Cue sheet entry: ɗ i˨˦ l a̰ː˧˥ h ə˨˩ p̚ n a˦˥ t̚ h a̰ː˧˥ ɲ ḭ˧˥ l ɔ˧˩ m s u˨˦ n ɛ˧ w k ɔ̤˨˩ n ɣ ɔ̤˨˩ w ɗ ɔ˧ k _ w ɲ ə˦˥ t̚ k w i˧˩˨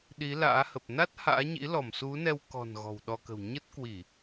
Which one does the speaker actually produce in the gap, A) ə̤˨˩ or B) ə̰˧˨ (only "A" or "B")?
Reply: A